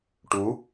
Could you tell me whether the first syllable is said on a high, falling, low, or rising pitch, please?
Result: rising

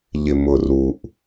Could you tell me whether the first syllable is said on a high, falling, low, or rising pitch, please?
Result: low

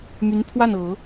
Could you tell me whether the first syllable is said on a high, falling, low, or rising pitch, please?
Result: rising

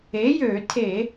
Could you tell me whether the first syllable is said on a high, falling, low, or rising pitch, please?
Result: rising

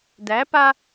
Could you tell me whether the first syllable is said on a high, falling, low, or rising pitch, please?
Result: rising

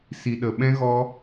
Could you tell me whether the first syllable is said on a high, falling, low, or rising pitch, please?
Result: low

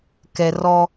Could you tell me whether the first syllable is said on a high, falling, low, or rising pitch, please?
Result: low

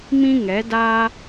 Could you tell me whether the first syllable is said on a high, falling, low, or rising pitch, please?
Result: high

